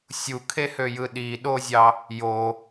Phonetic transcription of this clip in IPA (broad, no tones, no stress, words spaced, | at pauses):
sʲukʰehøjɯ ɗiɗozʲɑ | jo